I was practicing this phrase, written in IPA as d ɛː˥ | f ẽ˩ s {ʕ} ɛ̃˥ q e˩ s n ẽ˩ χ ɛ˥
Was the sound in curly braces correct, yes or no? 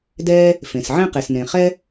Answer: yes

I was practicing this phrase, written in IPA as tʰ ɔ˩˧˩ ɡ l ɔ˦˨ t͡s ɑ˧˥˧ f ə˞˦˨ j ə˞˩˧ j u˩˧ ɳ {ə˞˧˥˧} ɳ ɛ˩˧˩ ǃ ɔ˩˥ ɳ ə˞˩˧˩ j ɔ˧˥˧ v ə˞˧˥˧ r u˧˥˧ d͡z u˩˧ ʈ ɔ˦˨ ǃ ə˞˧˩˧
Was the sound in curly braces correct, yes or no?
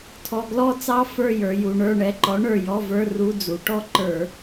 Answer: no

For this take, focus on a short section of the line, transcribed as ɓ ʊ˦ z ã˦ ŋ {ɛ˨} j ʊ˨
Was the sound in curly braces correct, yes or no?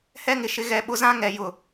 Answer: yes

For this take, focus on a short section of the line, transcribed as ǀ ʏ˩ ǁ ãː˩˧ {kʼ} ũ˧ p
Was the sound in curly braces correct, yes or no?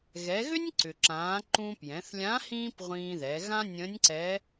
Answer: no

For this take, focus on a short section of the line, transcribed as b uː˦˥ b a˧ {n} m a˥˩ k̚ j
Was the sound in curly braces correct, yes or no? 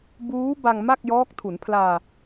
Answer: no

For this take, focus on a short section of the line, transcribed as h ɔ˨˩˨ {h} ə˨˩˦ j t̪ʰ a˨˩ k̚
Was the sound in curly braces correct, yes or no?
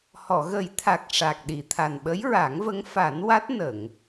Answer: no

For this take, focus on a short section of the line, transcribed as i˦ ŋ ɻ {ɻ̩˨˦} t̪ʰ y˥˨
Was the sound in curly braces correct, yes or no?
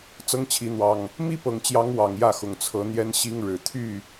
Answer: no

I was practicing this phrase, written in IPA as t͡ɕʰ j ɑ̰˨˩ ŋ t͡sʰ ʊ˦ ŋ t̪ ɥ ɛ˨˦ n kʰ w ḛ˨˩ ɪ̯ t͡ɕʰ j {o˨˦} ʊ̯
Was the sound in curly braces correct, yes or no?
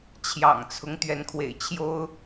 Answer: no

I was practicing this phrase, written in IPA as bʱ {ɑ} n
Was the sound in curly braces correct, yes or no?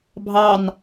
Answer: yes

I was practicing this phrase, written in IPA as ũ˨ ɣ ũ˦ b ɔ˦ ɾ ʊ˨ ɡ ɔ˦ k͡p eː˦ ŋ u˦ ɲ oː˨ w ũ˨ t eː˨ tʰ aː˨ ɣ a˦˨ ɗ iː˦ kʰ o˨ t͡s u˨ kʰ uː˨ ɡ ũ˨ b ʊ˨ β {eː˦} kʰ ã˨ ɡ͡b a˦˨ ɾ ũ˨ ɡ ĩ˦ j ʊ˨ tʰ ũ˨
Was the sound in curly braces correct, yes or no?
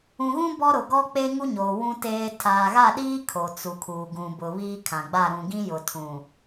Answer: no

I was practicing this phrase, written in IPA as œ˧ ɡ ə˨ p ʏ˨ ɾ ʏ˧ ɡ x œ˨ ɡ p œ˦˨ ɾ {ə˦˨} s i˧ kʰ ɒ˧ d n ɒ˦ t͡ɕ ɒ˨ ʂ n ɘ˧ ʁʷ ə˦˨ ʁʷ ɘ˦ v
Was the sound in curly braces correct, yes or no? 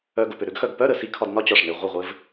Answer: no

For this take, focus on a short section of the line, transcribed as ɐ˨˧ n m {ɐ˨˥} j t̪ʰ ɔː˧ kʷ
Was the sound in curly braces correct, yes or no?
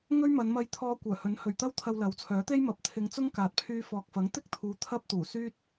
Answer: no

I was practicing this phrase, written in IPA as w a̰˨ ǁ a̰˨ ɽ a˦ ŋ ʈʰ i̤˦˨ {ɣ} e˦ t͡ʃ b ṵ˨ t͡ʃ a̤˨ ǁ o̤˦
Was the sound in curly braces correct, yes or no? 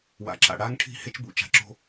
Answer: no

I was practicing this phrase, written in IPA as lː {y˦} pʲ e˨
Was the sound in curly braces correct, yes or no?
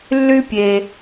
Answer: yes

